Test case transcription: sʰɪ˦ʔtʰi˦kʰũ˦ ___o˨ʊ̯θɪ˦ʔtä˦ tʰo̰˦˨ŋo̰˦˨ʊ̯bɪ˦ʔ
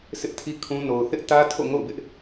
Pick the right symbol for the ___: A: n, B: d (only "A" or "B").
A